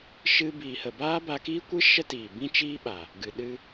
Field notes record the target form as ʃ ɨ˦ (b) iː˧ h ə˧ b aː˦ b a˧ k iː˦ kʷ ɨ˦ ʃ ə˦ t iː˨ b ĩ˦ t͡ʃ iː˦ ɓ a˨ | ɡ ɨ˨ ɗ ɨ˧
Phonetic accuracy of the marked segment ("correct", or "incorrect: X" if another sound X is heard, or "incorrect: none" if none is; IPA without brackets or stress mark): correct